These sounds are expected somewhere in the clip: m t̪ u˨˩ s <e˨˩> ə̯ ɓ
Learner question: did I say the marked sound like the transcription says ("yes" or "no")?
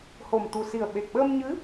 no